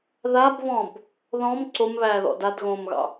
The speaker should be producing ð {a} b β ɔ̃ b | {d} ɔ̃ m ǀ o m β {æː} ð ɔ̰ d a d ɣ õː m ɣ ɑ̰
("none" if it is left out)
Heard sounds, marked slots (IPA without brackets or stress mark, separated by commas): a, ð, æː